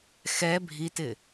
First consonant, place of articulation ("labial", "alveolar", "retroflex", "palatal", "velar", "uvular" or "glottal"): velar